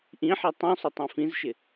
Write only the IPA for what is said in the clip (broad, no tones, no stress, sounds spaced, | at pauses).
ʔ ĩ ħ ɛ tˤ ũ sˤ ʊ tˤ ĩ f ĩ z ʃ ɪ